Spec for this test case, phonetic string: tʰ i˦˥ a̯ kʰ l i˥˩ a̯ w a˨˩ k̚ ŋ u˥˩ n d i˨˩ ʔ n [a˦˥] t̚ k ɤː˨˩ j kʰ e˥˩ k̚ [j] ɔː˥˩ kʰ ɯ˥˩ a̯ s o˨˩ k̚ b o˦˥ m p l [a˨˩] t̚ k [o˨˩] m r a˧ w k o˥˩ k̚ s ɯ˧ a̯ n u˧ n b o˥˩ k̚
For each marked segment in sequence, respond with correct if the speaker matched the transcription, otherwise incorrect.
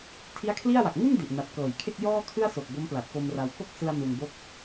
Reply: incorrect: a˨˩, correct, correct, incorrect: o˧

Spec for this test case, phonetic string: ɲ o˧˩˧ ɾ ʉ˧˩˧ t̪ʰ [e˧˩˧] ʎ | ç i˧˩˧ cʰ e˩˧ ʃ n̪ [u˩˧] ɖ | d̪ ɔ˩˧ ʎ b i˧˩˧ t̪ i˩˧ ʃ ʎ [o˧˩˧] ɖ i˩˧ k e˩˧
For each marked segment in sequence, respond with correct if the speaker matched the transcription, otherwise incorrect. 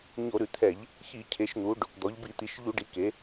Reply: incorrect: ɛ˧˩˧, correct, incorrect: u˧˩˧

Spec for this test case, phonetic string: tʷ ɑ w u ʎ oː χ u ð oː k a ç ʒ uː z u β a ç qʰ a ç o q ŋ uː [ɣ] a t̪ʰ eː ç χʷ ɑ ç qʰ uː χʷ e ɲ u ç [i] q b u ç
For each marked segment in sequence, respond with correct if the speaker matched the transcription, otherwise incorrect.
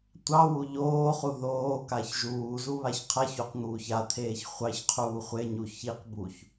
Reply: incorrect: ç, correct

